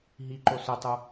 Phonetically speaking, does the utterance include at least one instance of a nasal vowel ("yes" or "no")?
no